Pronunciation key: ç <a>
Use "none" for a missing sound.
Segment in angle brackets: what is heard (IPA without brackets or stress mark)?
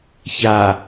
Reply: a